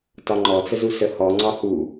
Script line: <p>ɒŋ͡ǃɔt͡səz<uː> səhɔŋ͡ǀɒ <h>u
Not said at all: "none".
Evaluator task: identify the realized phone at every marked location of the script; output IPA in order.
t, u, h

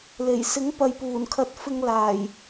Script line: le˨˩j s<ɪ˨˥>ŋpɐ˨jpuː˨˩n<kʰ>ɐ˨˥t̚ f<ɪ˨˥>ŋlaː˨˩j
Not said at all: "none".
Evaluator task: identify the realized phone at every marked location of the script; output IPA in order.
ɪ˨˥, kʰ, ɪ˧

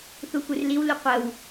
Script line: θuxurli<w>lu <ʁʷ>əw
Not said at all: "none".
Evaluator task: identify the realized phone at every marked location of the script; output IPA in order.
w, qʷ

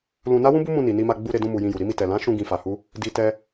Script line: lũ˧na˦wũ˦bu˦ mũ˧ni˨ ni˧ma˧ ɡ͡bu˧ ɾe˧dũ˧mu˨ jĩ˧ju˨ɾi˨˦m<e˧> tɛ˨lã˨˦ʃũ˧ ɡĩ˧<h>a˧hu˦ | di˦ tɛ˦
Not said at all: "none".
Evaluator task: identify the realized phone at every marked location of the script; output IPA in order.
i˧, f

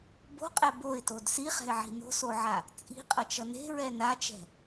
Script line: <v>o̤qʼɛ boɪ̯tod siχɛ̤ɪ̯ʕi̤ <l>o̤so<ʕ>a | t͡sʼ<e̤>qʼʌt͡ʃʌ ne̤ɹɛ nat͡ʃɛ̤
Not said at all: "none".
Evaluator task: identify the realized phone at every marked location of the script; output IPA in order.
b, n, ʕ, i̤

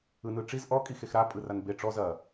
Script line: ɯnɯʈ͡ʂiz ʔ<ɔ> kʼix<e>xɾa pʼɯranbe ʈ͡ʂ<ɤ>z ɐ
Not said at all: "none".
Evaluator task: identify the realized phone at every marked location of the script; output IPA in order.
ɔ, e, ɔ

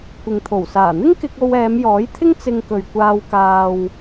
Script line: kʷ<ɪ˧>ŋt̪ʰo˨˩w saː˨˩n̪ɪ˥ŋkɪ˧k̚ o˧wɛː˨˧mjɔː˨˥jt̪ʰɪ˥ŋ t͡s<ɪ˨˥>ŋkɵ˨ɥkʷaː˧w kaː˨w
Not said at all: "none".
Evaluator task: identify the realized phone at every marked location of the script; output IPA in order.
ɪ˨, ɪ˧

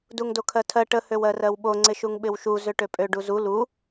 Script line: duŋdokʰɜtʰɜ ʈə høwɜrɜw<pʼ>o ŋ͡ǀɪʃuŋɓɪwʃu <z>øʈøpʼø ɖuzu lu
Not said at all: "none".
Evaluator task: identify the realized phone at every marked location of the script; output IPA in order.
ɓ, z

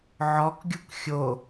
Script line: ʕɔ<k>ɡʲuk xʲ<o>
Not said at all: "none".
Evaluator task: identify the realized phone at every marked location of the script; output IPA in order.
k, o

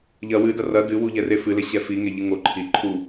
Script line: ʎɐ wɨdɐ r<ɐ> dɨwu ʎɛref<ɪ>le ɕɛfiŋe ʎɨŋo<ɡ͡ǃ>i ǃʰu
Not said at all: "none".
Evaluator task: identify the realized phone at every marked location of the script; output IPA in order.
ɐ, ɨ, ǃʰ

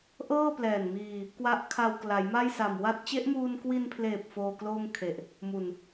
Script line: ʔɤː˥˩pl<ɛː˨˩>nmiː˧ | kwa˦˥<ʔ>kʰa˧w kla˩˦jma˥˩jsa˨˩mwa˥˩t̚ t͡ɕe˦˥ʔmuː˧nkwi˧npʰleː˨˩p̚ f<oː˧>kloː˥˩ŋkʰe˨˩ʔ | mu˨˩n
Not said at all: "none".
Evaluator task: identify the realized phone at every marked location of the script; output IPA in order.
ɛː˨˩, ʔ, oː˧

